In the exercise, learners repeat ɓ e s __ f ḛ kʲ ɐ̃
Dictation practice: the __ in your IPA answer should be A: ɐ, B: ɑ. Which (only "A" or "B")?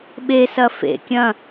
A